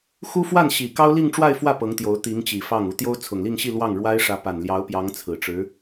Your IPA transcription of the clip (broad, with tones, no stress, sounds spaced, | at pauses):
x u˥ f w a˥˩ n ɕ i˨˩ k ɑ˥ ʊ̯ l i˥˧ ŋ ʈ͡ʂ w a˥˧ ɪ̯ f w ä˥˩ p ɤ˧˥ ŋ t̪ j o˧˥ ʊ̯ t̪ i˧˥ ŋ t͡ɕ i˨˩ f ɑ˥˩ ŋ u˧˥ t̪ j o˥ ʊ̯ t͡sʰ ʊ˨˩ ŋ l i˥˧ ŋ ɕ i˥˧ l w ɑ˥˩ ŋ ɻ w a˥ ɪ̯ ʂ ä˧˥ p a˨˩ n l j ɑ˧˥ ʊ̯ p j ɑ˧˥ ŋ t͡sʰ ɹ̩˨˩ ʈ͡ʂ ɻ̩˧˥